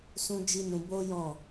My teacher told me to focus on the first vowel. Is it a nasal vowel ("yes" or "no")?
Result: yes